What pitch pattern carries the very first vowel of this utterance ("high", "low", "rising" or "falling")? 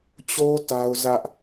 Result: high